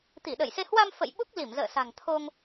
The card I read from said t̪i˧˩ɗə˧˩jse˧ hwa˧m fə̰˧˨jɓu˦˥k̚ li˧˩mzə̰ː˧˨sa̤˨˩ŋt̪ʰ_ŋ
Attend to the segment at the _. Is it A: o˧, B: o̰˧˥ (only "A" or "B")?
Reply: A